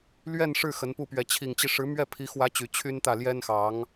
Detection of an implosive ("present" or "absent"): absent